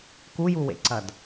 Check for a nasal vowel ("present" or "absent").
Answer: absent